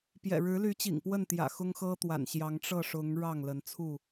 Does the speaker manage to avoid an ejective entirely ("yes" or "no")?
yes